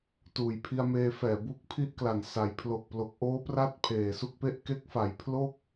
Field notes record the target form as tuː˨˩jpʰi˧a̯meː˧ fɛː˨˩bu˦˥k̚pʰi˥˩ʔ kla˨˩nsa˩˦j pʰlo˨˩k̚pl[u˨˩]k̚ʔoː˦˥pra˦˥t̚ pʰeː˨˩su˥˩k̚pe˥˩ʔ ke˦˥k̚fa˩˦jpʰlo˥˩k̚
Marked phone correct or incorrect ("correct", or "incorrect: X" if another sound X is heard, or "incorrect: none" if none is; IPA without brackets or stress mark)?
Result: incorrect: o˨˩